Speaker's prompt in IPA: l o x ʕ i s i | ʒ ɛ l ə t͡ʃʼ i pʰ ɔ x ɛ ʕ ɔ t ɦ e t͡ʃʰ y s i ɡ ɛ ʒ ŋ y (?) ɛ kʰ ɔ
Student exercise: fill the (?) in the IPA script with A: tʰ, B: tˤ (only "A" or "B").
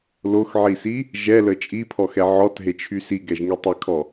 B